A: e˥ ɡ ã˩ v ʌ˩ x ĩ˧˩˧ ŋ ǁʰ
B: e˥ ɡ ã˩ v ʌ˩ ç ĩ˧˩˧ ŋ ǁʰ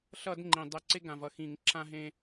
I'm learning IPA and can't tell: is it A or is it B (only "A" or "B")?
A